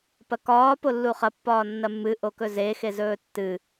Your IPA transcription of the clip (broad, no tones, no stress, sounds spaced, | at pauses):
p ɐ k ɒː p o lː u χ ɐ pː ɒː nː ɐ mː ɨ ʔ o k ɵ z e x e z ɵː tː ɨ